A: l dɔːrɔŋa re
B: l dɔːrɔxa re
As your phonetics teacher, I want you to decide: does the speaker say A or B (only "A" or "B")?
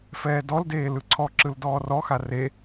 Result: B